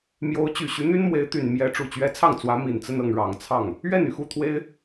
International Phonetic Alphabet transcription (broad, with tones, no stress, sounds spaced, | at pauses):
m j o˧˥ ʊ̯ t͡ɕ y˨˩ ɕ y˧˥ n̪ y˥ n m w e˧˥ ɪ̯ t̪ y˨˩ n m j ɛ˧˥ ʈ͡ʂ u˨˩ t͡ɕ ɥ ɛ˧˥ t͡sʰ ɑ˥˩ ŋ t͡s w ä˧˥ m i˨˩ n t͡s ə˥˧ n ɤ˥˩ ŋ ɻ ɑ˨˩ ŋ t͡sʰ ɑ˥˩ ŋ | ɥ ɛ˥˩ n y˩ x u˥˩ t̪ʰ w e˥ ɪ̯